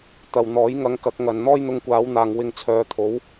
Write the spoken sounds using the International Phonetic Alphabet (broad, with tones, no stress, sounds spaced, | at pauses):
t̪ ɐ˨ w n̪ ɔː˨˥ j ŋ ɐ˨˧ ŋ k ɐ˨˥ k̚ ŋ ɐ˨ n n̪ ɔː˥ j n̪ ʊ˧ ŋ kʷ aː˨˧ w n̪ aː˨ ŋ w ɪ˧ ŋ t͡sʰ œː˨˧ t̪ʰ o˨˥ w